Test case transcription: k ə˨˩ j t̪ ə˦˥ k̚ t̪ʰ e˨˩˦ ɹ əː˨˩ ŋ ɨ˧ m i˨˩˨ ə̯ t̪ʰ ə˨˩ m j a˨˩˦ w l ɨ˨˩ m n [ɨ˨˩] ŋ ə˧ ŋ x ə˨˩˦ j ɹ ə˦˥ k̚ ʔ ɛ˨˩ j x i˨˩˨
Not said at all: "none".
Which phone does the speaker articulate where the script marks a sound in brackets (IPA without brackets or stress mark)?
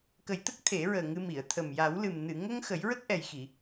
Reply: ɨ˨˩˨